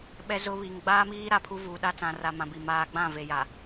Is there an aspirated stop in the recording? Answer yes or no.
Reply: yes